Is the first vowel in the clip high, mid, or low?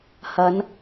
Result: low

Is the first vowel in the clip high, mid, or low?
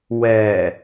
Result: mid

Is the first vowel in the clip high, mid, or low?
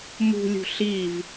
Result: high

